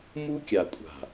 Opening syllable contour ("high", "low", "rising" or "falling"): high